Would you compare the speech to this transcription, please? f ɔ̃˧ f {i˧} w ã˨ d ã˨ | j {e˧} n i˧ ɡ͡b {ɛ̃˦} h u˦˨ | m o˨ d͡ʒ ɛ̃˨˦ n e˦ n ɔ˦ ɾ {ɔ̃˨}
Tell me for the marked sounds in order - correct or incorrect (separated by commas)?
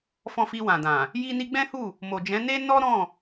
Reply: correct, incorrect, correct, incorrect